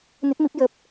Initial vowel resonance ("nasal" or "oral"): oral